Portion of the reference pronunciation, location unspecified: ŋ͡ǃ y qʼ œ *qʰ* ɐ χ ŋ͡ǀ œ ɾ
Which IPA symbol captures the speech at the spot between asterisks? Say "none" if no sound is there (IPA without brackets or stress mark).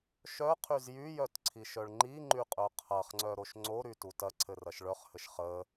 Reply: qʰ